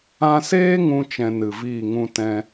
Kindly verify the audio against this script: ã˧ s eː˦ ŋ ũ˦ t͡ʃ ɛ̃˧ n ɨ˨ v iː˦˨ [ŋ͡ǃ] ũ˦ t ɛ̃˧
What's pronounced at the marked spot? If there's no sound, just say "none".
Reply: ŋ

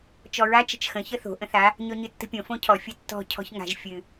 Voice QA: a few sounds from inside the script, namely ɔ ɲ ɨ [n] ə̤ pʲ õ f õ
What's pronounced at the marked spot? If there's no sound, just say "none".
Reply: tː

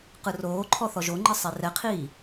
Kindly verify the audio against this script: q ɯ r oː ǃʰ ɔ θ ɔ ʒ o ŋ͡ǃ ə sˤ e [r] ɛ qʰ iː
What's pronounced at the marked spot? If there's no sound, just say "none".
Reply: r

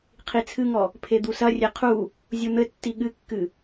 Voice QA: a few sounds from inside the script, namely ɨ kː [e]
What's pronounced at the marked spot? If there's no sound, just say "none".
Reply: ɨ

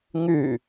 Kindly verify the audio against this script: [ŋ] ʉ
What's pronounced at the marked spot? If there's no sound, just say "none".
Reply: ŋ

